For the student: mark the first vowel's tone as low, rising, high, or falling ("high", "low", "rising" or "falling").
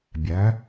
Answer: rising